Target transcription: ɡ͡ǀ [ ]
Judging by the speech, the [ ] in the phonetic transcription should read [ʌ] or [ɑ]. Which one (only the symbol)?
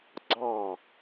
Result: ɑ